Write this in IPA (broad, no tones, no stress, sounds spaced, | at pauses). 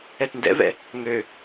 ɛ t n d ɛ̰ v ɛ̰ | ŋ ø